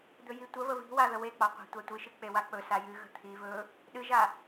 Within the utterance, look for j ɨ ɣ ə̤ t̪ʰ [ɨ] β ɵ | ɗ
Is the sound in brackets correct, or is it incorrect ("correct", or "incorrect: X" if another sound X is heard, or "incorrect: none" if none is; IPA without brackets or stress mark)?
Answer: incorrect: i